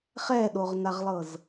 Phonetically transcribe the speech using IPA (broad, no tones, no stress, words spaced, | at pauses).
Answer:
χɛɗoʁnaʁlˠɤz